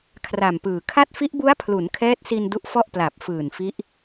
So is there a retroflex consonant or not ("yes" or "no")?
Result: no